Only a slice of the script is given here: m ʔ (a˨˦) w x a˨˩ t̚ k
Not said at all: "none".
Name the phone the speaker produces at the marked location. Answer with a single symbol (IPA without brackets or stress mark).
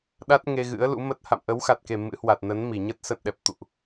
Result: ə˨˦